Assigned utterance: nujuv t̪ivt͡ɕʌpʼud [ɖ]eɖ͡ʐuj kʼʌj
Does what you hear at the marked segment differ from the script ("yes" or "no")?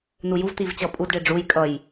no